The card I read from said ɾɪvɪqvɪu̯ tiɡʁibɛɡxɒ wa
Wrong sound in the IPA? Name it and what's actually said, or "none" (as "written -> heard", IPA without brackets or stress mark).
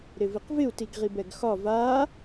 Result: w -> v